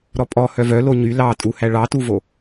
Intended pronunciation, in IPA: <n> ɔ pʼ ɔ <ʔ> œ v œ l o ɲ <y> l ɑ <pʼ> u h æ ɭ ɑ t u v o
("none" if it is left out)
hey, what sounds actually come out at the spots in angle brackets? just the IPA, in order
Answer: ɾ, h, y, tʼ

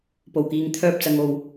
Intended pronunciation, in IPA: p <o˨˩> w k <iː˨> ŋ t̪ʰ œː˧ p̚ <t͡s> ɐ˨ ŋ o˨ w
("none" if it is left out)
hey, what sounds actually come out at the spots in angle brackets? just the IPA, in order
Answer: o˨˩, iː˨, t͡s

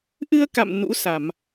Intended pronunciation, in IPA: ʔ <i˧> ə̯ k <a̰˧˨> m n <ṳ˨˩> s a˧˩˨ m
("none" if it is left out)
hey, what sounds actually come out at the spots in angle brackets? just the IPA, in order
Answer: ɨ˧, a̰˧˨, ṵ˧˥

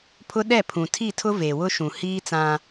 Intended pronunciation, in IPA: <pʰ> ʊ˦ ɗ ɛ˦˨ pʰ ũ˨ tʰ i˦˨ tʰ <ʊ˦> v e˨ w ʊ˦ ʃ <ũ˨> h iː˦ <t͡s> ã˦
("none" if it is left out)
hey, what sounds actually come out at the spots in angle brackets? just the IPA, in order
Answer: pʰ, ʊ˦, ũ˨, t͡s

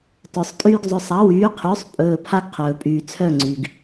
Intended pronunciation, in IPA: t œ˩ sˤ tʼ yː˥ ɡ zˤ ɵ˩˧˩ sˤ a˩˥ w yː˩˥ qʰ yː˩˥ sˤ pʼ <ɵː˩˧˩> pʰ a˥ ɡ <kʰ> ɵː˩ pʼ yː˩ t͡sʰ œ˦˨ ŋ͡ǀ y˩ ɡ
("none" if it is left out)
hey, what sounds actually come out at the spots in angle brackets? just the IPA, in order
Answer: ɵː˩˧˩, qʰ

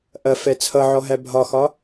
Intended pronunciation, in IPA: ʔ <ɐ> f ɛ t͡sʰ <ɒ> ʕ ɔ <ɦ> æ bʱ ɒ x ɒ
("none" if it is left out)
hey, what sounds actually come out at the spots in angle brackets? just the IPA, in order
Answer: ɐ, ʌ, ɦ

